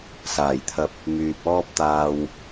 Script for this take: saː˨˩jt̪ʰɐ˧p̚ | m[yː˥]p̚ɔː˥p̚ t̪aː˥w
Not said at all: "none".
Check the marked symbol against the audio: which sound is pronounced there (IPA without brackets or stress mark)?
yː˨